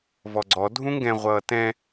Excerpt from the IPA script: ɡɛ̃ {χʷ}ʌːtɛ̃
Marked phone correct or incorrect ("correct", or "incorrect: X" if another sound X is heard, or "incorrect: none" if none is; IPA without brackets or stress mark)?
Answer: incorrect: ʁʷ